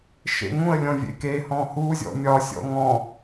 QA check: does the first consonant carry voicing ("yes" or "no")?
no